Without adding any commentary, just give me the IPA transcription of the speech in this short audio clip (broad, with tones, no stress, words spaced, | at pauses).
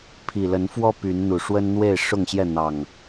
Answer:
pʰi˨˩lə˨˦nfwɔ˦ py˨˦n n̪u˨˩ʂwə˦nn̪we˥˨ɪ̯ ʂʊ˥˨ŋɕjɛ˥˨ n̪ɑ˨˩ŋ